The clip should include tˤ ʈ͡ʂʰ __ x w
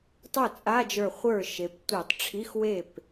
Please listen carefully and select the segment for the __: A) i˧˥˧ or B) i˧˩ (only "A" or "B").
A